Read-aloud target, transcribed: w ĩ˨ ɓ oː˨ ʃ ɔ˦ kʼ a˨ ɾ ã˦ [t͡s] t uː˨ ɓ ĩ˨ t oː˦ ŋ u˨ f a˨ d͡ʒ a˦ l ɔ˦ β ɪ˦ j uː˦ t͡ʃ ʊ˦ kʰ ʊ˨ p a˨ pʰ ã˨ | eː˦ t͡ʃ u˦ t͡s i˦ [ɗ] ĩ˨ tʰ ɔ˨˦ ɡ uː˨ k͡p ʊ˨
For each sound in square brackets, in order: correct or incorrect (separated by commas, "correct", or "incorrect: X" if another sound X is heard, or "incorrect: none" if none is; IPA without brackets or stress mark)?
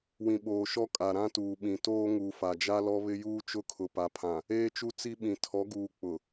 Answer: incorrect: none, incorrect: ɓ